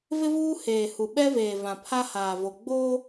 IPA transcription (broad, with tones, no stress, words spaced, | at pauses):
vɪ˦vuː˦ heː˨hu˨ ɓɛ˦veː˨ vã˨pʰa˦ haː˨vo˨ ɡ͡boː˦